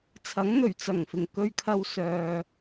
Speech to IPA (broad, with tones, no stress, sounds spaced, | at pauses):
t͡sʰ ɐ˨˥ ŋ n̪ ɵ˨˩ ɥ t͡s ɐ˨˩ ŋ f ɪ˨˩ ŋ k ɵ˨ ɥ kʰ ɐ˨ w s œː˨